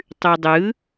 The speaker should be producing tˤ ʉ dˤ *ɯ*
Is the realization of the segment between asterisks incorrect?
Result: no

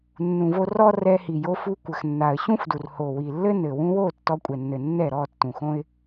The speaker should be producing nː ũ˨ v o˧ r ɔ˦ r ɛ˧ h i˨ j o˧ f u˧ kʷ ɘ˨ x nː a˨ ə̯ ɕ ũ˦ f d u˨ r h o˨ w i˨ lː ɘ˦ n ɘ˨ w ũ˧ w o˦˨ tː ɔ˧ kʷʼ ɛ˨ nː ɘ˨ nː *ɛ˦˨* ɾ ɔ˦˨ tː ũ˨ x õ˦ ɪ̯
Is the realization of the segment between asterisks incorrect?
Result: no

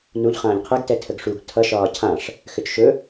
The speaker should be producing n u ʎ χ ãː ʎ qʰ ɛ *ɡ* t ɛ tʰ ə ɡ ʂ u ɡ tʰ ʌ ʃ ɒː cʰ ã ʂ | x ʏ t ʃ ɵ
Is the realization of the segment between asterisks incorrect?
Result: no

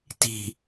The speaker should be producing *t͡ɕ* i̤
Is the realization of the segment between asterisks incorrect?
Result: yes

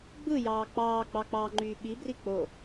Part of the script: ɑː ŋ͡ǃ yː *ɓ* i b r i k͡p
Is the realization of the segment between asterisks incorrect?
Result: no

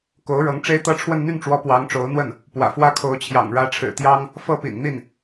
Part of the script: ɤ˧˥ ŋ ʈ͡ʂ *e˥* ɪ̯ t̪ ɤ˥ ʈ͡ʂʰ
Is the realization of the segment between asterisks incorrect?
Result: no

